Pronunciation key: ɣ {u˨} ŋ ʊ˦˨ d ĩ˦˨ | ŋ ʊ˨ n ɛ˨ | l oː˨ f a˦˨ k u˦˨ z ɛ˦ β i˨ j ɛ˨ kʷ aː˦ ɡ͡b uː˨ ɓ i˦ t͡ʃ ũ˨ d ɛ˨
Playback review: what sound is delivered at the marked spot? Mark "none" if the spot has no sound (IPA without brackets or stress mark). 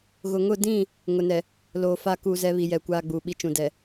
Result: ʊ˨